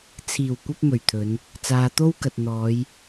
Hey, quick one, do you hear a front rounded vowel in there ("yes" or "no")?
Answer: no